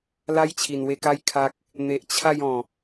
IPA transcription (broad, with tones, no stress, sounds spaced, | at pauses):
l a˦ j t͡ɕʰ i˨˩ n w e˧ k a˦ j kʰ a˦ k̚ | n̪ e˨ ʔ t͡ɕʰ a˥˧ j ɔ̃˨˩